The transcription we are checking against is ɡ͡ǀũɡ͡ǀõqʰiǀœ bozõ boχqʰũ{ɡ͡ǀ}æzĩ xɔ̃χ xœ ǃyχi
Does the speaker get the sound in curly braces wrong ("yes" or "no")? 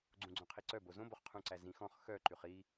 yes